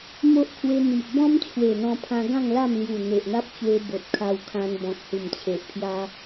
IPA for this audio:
m o˦ ʔ kʰ w e˧ n̪ i˨ ʔ b ɔ̃˦ m t͡ɕʰ w e˨˩ n̪ ɔ̃˧ pʰ ã˧ ɡ ã˥˧ ŋ l a˥˧ m l j u˨˩ n̪ e˨ ʔ n̪ a˦ p̚ t͡ɕ w e˧ b o˨ t̚ kʰ a˧ w kʰ ã˧ n b ɔ̃˨ k̚ h u˨˩ m t͡ɕʰ e˨ ʔ pʰ j a˧

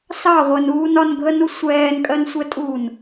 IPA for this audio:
s ɑ ʁʷ ɜ n uː n ɒ n ɡʱ ə n u sʷ ɛː n kʼ ɜ n sʷ ɛ tʼ uː n

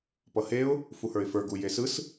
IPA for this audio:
p ʌ h e ʊ̯ | f u h ə˞ ɪ̯ f ə˞ ɡ u j e s ɯ s

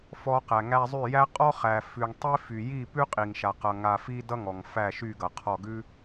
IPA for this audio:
f ɔ˧ q æ˨ ŋ æ˧ zˤ y˦˨ j æ˦ qʼ ɔ˦ χ æ˨ f ʉ˨ ŋ tˤ i˦ f y˨ j i˦˨ p ʉ˦ qʼ i˨ ŋ ʃ a˨ q ʌ˨ ŋ a˧ f i˦ d ʌ˦ ŋ ɔ˨ ŋ f æ˦˨ ʃ y˦˨ ɡ ʌ˨ qʰ ɔ˦˨ ɡ ʉ˦

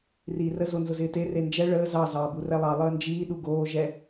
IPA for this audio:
r iː r ə z o n z ʊ z ɪː t e r e n d͡ʒ ɛ ɭ əː z ɑ z ɑː b u r ɛ lˠ ɑ lˠ əː n d͡ʒ iː ɗ u ɡ oː ʒ ɛ

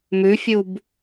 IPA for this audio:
m ʉ fʲ u b

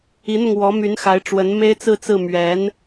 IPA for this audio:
i˧˥ n̪ ʊ˧ ŋ w ɔ˧˥ m y˧˥ n x a˧˥ ɪ̯ ʈ͡ʂ w ə˧˥ n m e˥ ɪ̯ t͡s ɹ̩˥˧ t͡s ɹ̩˥˩ m ɥ ɛ˧˥ n

